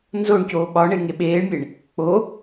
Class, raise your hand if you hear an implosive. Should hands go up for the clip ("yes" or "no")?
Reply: yes